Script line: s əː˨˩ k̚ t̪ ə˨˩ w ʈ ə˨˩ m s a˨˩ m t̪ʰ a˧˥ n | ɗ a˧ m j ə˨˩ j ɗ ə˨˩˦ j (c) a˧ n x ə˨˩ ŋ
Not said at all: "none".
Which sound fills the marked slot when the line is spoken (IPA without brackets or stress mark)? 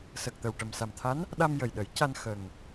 c